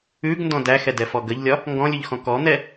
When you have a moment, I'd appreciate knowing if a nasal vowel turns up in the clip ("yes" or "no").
yes